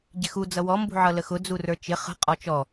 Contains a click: no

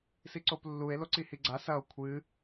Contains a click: yes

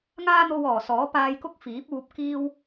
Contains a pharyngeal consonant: no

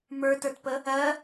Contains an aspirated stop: no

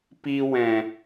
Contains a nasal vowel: yes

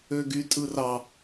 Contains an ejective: yes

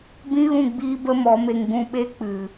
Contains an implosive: yes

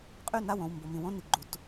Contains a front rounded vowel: yes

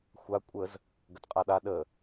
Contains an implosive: yes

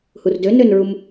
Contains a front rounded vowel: yes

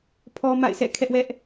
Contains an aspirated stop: yes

